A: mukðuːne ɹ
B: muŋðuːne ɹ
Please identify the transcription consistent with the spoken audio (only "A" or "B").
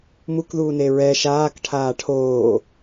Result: A